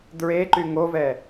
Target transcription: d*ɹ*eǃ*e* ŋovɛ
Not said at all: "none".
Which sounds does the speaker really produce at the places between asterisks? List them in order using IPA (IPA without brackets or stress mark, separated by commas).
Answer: ɹ, y